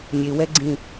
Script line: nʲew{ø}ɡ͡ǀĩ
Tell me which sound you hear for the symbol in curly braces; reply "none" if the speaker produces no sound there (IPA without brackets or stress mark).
ɛ